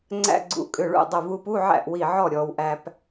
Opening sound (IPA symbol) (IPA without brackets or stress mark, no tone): ŋ͡ǀ